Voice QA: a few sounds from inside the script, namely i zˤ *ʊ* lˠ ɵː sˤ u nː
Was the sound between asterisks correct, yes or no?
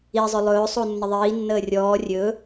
no